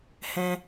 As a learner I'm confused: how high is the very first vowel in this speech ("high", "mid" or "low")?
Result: mid